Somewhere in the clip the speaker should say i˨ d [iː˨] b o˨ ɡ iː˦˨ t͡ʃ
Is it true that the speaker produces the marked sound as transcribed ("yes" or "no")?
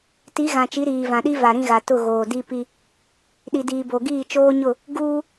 yes